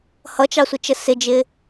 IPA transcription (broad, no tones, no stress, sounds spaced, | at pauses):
h ʌ t͡ʃ ɑ sʷ ɪ t͡ʃ ə s ɪ d͡ʒ ɪː